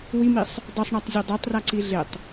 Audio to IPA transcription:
wimisˤ | dˤesˤɳatˤzʲo dˤɛtˤraǀi ɮɪtˤ

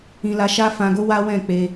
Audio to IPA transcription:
ĩ˧la˧ʃa˦ fã˧ɡo˦ wa˦wɛ̃˦˨k͡pe˧

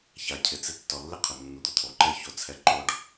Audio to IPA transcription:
ça˩cʰɪ˩ t͡sɪ˧ tːɔ˩lːɪ˥qʰʊ˩ nːu˩d̪ʊ˩t̪ʰo˩ǃɛ˥ ço˧t͡sʰɛ˧ ǃo˥ɖ

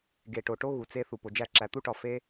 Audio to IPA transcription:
ɡe˨ʈo˨ʈo˦ ɣu˨t͡se˦ θu˨po˨d͡ʒæ˦˨ ǁæ˨t̪u˦ʈɒ˨ fe˦

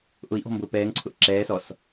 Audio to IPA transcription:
ʔʊi̯ʔɔ̤ mbʊːpɛːŋǀʰʊʔ ǁɛː sɔs

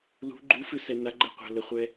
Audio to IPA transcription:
lṳ ɡ͡ǃufɨsɛ naɡ͡ǃɛqʷa̤ ləχʷɛ

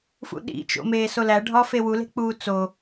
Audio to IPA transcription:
fṵɗḭt͡ʃo̰ meːsolæ ɖʱɒːfewule̤ k͡puːt͡so

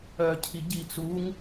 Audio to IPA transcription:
œcʰi ɟi t͡suŋ

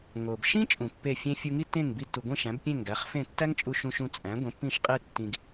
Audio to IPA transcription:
ŋo˩bʃĩ˥ t͡ʃʼũ˩pːe˥˩fʲẽ˥ fʲu˧ŋi˥tːẽ˥˩ŋ bi˧tːu˩ɡʷĩ˥˩ ʃæ̃˩˥bpʲẽ˥˩ŋɡæ˩˥χfẽ˥˩ tːæ˥ŋt͡ʃʼu˧ʃũ˧ ʃũ˧t͡sʼæ̃˩˥ ɡʷẽ˩˥pːĩ˥˩ʃqʼe˥ tːĩ˧ɡ

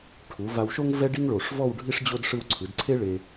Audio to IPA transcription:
ʈʰu˩˧ va˧wʃo˥ŋ vɛ˥ɖi˥ŋ ɭo˧˩ʂ vɔ˥˧wɖʱi˥ʂ d͡ʑo˥d ʂɯ˧wǀʰɯ˩˧dǀʰe˥ ɭe˧

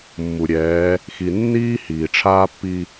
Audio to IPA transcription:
mːu˨ɾʲɛː˨˦ | xi˨nːiː˦ hiː˨ʈ͡ʂʰaː˦ pːi˦

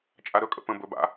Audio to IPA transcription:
t͡ʃʼaɾɵkʼə̰ pə̃ bɵ ba̰

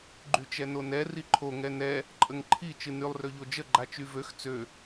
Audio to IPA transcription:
ɡ͡ǃyt͡ʃɛnonɛ riǃʰo ŋɛnɛ | ǃʼəŋǃʰi t͡ʃɨnylˠ røʎod͡ʒə ɡ͡ǃat͡ʃyvøx t͡sø

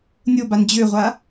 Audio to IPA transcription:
nʲoban d͡ʑøʁʷa

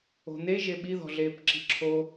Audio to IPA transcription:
o̤n̪e ʒeɓi ðɔ̤ɮeːpǁi̤ǁʰo

